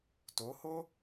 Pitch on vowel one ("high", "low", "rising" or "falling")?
rising